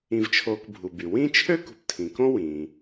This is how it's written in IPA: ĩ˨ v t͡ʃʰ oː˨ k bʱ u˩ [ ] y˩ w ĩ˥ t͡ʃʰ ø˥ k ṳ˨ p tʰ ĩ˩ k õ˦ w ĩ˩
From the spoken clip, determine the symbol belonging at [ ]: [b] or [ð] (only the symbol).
b